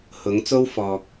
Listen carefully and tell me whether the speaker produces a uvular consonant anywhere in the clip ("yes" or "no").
no